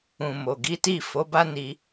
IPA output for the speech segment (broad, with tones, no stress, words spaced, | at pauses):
ũ˨mo˨ɡi˨˦ti˦˨ fo˨˦ba˦ni˧